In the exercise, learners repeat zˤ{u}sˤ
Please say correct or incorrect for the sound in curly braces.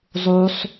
correct